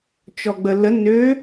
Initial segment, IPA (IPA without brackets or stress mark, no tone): t͡ʃ